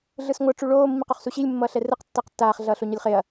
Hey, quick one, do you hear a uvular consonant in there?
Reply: yes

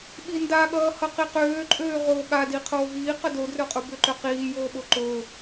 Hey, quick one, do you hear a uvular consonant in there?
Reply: yes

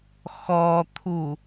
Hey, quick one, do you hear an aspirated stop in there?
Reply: yes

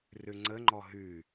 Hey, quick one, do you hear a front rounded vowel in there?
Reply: yes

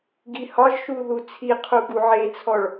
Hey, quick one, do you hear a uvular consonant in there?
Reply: yes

